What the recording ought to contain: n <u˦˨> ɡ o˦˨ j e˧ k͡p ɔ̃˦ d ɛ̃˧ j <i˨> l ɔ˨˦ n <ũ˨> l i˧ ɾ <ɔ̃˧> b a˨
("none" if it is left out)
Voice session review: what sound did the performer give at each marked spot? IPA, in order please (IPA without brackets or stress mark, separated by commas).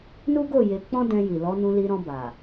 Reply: u˦, i˨, ũ˧, ɔ̃˧